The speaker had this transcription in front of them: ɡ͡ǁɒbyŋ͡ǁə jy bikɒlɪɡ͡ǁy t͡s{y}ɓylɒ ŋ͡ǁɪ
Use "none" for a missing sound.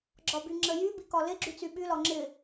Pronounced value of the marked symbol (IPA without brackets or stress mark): y